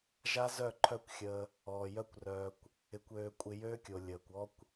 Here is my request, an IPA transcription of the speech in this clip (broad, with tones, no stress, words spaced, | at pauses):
ʒa˦zœ˦˨ ǃʰœ˦kʷxʲəː˧ | ɔː˨ jœ˦kʷrœː˧kʷ | ɪ˧kʷøː˧ kʷʼɪ˧jøː˦kʲo˨ lʲəː˨kʷɔ˦kʷ